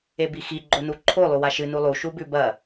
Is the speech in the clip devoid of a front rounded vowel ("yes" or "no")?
yes